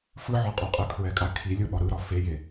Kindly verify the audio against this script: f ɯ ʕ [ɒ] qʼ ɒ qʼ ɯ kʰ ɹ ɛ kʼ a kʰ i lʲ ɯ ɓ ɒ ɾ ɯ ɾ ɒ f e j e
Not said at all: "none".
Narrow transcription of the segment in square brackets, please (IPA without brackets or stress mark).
ɒ